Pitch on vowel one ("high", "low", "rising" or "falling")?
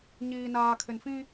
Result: low